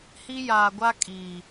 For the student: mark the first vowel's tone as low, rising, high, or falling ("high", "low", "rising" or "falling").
high